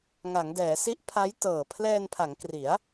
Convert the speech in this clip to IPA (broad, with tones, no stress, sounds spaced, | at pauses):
ŋ a˩˦ ŋ d ɛː˩˦ s i˦˥ ʔ pʰ a˦˥ j t ɤː˨˩ pʰ l ɛː˧ n pʰ a˩˦ ŋ k r i˩˦ a̯